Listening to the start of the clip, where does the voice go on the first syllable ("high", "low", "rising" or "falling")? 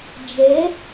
rising